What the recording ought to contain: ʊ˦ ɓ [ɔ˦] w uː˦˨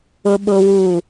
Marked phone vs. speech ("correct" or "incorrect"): incorrect